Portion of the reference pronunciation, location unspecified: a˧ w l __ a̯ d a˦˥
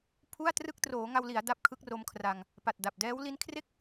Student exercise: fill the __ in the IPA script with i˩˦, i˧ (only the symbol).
i˩˦